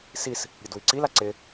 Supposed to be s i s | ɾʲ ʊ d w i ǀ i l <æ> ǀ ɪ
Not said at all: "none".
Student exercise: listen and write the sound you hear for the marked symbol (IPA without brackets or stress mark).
a